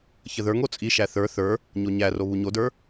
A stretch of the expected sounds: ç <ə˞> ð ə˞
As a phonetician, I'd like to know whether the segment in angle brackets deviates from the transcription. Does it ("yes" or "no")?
yes